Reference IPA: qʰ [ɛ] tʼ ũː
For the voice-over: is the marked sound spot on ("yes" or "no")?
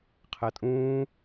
yes